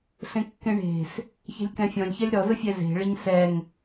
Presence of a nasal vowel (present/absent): present